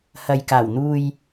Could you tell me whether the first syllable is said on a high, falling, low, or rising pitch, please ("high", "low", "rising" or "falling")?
low